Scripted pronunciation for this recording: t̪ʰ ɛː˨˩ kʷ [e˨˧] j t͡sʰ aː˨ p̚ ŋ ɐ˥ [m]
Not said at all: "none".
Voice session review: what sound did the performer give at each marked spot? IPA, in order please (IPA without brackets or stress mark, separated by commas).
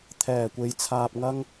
e˨˧, ŋ